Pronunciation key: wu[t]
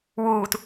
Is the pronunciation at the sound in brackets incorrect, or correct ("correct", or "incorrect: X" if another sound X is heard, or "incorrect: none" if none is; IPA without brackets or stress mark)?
correct